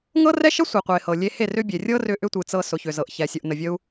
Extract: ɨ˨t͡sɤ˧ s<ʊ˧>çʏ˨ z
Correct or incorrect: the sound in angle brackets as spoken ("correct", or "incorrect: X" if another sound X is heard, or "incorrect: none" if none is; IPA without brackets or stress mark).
incorrect: ʊ˨